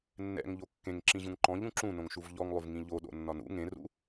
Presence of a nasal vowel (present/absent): present